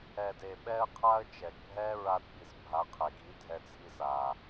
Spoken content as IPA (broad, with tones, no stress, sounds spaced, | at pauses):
ɛ˨ d e˨ ɓ ɛ˧ ə̯ qʰ a˧ ə̯ t͡ʃ ɛ˨ ɡ bʱ ɛ˦ ɹ a˧ d ɓ i˨ s bʱ a˨˦ qʰ e˨ ɡ i˨˦ dʱ ɛ˧ t͡sʰ i˧ s a˨